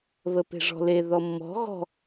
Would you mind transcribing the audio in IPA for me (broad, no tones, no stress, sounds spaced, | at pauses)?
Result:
β ə p e̤ ʐ ɔ̤ l e ð ɔ mː ɔ̤ ɣ ɔ̤